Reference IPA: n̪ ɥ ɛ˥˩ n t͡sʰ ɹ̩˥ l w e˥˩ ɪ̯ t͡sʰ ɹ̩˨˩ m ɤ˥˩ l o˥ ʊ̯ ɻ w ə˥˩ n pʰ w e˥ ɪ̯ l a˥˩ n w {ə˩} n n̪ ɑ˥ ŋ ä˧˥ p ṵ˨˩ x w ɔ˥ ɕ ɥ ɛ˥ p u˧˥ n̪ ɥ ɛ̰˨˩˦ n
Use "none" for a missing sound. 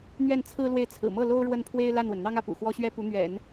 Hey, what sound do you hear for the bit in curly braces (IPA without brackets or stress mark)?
ə˩